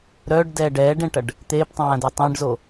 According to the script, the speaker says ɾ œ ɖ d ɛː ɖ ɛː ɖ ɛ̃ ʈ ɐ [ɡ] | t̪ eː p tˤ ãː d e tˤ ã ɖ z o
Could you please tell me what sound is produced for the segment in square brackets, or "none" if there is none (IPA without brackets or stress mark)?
ɖ